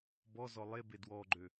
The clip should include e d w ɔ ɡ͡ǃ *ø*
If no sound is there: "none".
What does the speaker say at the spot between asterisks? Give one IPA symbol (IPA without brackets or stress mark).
ø